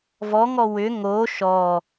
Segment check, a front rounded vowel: present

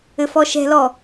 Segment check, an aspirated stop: absent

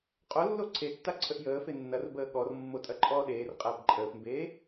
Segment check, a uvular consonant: present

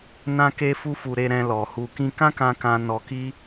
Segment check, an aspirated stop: absent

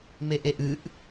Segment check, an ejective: absent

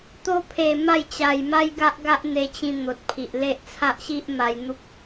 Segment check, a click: absent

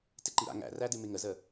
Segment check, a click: present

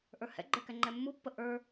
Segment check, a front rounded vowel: absent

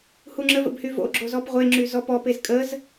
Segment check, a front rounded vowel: present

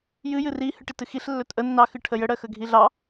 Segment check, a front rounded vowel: absent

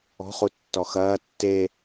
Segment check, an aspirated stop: absent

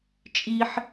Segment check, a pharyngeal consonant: present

